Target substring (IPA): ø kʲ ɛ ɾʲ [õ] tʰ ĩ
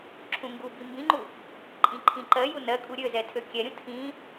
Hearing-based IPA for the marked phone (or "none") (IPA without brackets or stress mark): ũ